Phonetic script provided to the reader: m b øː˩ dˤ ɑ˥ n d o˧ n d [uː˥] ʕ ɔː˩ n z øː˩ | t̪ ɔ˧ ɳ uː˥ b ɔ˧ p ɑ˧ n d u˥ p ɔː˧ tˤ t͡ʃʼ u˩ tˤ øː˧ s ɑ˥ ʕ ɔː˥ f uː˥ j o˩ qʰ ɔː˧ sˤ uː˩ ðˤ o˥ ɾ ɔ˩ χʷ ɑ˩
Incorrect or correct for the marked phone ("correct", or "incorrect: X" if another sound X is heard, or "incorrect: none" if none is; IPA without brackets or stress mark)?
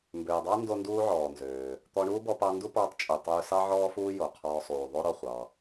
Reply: incorrect: uː˧